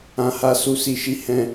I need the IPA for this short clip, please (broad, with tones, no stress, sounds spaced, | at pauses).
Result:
ã˧ h a˦ s u˧ s i˧ ʃ i˦ h ɛ̃˦